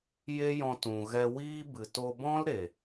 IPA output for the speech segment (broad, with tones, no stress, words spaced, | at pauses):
je˦jɔ̃˧t ũ˨ɣɛ˧wiː˦ bɨ˨to˧bɔ̃˦l ɾe˨